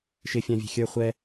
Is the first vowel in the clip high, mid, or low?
high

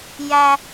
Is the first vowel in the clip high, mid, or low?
low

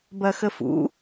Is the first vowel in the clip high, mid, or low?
low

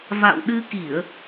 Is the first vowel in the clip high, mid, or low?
low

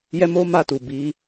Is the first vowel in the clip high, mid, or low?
mid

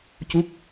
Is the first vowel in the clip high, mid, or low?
high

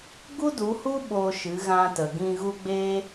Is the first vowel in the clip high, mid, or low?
high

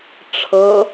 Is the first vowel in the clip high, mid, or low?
mid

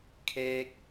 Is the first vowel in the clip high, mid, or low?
mid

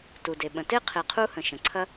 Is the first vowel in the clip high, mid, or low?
high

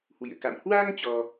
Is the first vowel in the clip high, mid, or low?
high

